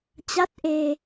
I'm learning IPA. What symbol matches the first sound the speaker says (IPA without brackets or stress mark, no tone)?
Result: t͡ɕ